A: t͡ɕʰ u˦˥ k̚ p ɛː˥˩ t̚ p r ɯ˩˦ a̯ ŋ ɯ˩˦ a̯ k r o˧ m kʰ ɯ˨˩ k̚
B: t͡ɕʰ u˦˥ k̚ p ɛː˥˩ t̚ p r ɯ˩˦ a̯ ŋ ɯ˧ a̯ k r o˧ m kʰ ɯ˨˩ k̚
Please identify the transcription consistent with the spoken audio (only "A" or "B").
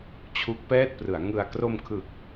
B